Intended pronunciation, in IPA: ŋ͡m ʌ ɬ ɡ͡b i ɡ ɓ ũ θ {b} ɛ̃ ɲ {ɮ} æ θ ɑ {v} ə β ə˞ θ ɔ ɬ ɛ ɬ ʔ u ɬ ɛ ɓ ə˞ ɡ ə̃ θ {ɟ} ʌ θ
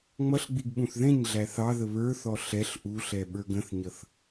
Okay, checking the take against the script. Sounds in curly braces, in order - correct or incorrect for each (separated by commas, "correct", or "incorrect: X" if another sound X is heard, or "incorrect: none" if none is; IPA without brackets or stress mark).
incorrect: ð, correct, incorrect: ð, incorrect: ɲ